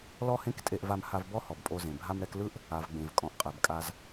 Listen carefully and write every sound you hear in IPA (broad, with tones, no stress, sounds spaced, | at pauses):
l ɔ˥ h ẽ˥ k tʼ e˧ ʔ v a˧ m h a˧ v b ɔ˥ h ɔ˩ b pʼ o˧ z ẽ˩ bʱ a˧ m ɾ ɛ˧ k l ɯ˥ ʔ | a˩ v ɡ͡b ẽ˩ v kʼ ɔ̃˩ ʔ qʼ ɛ˩ b kʼ a˧ z